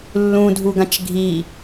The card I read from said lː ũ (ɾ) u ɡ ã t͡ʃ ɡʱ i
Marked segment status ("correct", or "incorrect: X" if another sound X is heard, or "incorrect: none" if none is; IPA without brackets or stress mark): incorrect: dʱ